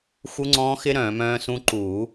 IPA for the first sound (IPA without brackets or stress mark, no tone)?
x